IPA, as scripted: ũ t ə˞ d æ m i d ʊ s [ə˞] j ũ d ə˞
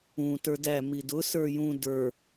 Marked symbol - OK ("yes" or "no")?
yes